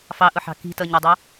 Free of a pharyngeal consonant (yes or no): no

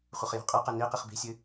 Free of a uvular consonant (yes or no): no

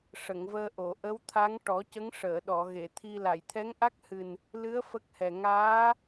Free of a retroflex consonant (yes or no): no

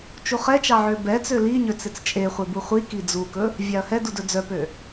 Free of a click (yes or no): yes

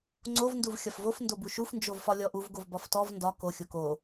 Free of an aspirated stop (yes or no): yes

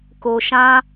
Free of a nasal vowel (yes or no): no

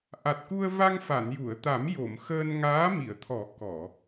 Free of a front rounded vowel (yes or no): yes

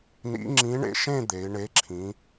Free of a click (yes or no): no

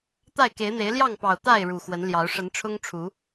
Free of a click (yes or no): yes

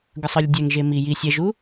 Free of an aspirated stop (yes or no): yes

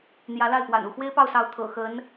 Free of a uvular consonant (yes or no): yes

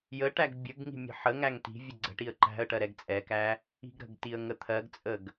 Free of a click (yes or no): no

